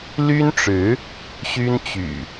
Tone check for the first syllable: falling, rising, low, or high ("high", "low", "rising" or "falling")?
high